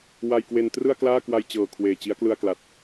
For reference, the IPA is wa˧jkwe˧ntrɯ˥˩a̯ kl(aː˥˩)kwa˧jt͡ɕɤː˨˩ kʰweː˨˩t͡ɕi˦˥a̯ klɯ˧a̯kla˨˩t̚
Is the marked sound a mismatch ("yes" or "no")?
no